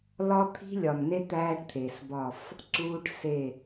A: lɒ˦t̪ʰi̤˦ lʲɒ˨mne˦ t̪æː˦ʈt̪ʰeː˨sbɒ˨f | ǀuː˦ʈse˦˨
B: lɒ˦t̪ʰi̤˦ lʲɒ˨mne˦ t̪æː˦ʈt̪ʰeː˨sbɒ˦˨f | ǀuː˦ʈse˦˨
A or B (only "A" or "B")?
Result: B